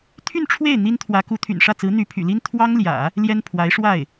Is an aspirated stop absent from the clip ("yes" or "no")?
no